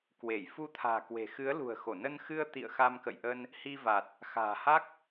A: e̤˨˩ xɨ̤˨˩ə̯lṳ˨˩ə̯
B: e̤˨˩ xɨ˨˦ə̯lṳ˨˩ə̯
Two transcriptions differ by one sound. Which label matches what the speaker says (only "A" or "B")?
B